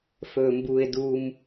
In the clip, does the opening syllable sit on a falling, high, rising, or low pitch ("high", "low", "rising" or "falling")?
low